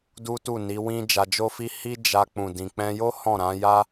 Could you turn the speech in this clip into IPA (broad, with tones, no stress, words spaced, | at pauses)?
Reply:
du˦tu˦˨ni˨˦wĩ˦ d͡ʒa˧d͡ʒo˦fi˦ hi˦d͡ʒa˧ k͡pũ˨dĩ˨ k͡pɛ̃˧jo˦ hɔ̃˦˨ɾã˨˦ja˦